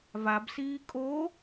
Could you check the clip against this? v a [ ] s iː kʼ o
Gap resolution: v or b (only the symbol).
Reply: b